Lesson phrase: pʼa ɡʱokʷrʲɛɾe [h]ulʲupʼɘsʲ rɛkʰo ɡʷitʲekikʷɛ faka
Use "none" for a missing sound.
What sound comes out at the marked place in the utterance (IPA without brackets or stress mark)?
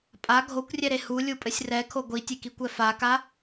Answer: h